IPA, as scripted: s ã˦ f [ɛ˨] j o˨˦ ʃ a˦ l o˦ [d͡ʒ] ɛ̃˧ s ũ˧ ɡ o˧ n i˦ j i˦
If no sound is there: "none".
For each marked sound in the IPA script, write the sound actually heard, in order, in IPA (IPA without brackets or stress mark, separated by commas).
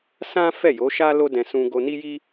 ɛ˦˨, d